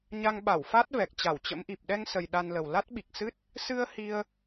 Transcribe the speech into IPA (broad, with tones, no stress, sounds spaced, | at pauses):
ɲ a˧ ŋ ɓ a˧˩ w f a˦˥ t̚ v ɛ˨˩ k̚ t͡ɕ a˧˩ w t͡ɕ ə̰˧˥ m ʔ i˨˩ p̚ ɗ ɛ˧ ŋ s ə˨˩ j ɗ a˧ n l ə˨˩ w l a˦˥ t̚ ɓ i˨˩ k̚ s ɨ˦˥ t̚ | s ɨ˧ ə̯ h i˧ ə̯